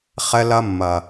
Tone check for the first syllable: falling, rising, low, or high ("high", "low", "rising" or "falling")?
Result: high